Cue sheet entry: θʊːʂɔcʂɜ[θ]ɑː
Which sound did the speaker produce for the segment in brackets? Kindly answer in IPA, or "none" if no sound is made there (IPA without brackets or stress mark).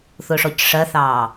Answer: θ